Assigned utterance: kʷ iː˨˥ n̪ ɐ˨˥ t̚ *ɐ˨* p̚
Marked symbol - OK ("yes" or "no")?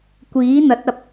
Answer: yes